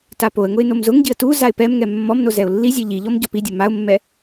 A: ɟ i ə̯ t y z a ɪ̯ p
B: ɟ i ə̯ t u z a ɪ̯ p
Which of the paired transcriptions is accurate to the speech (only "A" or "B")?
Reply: B